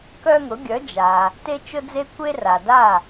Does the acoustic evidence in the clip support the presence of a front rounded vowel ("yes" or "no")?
yes